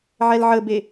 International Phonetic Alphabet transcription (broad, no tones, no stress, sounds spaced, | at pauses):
ʕ ɛ l ʕ ə b e